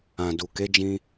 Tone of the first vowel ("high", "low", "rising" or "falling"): low